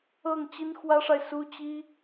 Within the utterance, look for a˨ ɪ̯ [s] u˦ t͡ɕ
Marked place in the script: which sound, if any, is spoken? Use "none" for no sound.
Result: s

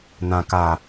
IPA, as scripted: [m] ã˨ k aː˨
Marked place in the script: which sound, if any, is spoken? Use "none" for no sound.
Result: n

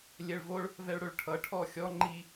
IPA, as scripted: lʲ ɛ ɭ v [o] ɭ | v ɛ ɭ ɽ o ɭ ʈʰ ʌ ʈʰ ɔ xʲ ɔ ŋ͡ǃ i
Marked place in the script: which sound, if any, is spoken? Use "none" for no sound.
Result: o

